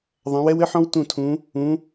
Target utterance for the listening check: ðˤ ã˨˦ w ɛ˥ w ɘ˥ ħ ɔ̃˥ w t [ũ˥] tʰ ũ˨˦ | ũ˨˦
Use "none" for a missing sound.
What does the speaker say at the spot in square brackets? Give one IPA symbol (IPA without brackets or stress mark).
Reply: ũ˦˨